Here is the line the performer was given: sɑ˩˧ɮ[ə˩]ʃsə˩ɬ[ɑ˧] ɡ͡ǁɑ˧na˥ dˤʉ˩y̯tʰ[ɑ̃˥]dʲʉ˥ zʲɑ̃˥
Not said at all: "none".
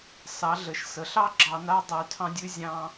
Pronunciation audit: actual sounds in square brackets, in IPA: ə˩, ɑ˥, ɑ̃˥

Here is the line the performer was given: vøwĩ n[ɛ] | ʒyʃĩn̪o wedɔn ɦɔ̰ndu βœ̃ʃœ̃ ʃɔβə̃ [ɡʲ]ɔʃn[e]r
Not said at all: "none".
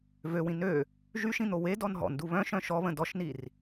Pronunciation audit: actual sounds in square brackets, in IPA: ø, d, i

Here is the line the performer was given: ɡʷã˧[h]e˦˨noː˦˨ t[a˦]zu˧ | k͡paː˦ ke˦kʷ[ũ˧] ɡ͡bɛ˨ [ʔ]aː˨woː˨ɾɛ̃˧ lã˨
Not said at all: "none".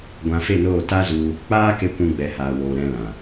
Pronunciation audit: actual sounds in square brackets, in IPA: f, a˦, ũ˧, h

